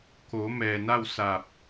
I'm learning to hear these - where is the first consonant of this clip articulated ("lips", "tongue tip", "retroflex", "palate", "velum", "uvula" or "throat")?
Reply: velum